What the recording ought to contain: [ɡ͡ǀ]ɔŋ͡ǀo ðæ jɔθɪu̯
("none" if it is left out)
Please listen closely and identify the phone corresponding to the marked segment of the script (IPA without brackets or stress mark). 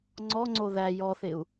ŋ͡ǀ